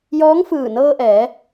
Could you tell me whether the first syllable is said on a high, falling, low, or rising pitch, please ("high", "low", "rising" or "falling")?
rising